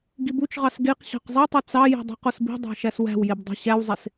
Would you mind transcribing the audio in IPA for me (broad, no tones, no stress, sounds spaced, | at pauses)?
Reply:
ɡ i b u t͡ʃ ʁ ɑ s ɡ e q ɕ ɑ̤ q zˤ i tˤ ɯ t͡s ɑ j i̤ dˤ i̤ q o s b i̤ dˤ æ̤ ʃ æ s w æ̤ w j e b dˤ e̤ ɕ æ w zˤ e s